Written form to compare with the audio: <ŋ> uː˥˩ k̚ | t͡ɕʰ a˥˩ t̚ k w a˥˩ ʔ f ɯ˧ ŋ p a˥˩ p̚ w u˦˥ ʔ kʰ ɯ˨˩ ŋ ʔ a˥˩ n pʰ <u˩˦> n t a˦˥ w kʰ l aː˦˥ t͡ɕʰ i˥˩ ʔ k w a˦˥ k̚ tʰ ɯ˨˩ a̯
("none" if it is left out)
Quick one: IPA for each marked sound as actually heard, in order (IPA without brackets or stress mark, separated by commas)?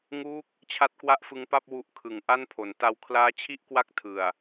ŋ, o˩˦